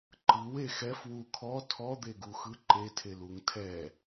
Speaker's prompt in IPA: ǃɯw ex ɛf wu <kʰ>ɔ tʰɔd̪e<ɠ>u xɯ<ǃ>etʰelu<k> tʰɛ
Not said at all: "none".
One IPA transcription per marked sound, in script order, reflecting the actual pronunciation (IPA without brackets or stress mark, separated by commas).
kʰ, ɡ, ǃ, ŋ